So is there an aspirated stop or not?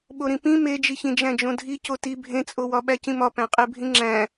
no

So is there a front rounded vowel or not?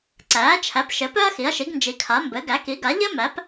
yes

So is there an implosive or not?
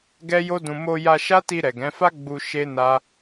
no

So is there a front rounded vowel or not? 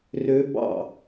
yes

